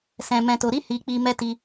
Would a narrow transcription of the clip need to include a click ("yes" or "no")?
no